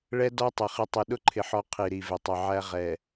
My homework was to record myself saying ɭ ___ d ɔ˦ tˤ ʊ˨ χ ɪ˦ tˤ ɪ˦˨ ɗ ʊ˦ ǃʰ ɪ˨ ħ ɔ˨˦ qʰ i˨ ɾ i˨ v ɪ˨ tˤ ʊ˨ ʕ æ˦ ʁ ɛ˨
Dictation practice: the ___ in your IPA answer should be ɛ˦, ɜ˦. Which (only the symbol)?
ɛ˦